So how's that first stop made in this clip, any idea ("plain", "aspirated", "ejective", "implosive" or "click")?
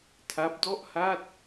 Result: aspirated